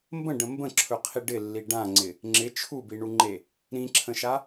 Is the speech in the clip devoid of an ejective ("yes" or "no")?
yes